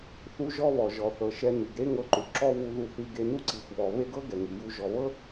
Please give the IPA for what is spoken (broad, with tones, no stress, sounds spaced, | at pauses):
θ u˥ ʒ ɔ˥ β ɔ˩ ʒ ɔ˩ θ ɤ˩ ʃ ɛ˧ n i˩ ɡ ɾ e˥ ŋ ɤ˧ ǃ u˩ ǁ ɔ˥ v u˧ ð u˧ θ i˧ ɡ e˧ n u˥ ǀ i˩ xʷ β ɔ˩ β e˥ ɡ ɤ˥ ɡ ɛ˩ ŋ i˩ j u˧ ʒ ɔ˩ β ɤ˥